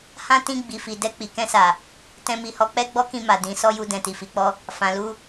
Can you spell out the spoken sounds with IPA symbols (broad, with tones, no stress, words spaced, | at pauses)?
hã˦ tĩ˦˨ ɡ͡bi˨fi˨ dɛ˧k͡pi˨kɛ̃˧sa˨ | tɛ̃˧mi˨hɔ˧ k͡pɛ˦ɡ͡bɔ˦kĩ˦˨ ma˨ dĩ˨˦sɔ˦ju˧ dɛ̃˨ti˨fi˨k͡pɔ˧ | fã˨lu˧